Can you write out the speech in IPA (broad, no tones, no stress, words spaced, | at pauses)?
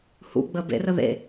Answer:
hṵ ɡ͡bəːbḛrə ðḛ